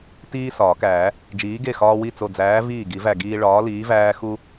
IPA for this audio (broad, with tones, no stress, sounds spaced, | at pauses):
t iː˦ s ɒː˨˩˦ k æː˨˩˦ | d͡ʒ iː˨˥ ɡ e˥˩ x ɒː˦ w i˥˩ t͡s o˧˩ d͡z æː˨˥ v iː˥˩ ɡ i˨˩˦ v æ˧˩ ɡ iː˦ ɭ ɒː˨˥ l iː˨˥ v æː˦ x u˦